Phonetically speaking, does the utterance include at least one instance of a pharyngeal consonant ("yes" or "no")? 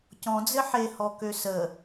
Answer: yes